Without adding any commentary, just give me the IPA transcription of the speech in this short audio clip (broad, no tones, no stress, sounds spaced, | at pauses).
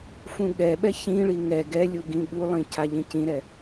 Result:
f ũ ɠ ɛ ɓ ɛ ç ĩ ɭ i ŋ ɛ ɡ ɛ lʲ u ɡ ĩ ɠ u lˠ ĩ cʰ a ʎ ĩ c ĩ ɾ ɛ